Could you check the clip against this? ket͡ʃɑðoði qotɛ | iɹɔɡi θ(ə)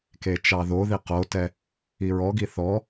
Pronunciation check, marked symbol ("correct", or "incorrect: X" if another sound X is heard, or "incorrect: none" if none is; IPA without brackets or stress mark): incorrect: ɔ